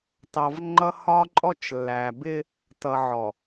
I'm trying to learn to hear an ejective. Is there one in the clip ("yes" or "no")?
yes